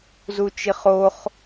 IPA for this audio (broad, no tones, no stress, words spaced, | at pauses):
zut͡ʃiχoχ